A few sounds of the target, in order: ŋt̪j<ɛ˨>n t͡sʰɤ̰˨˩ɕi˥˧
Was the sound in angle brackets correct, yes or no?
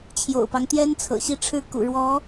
no